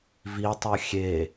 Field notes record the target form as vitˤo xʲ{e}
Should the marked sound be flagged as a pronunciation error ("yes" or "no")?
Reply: no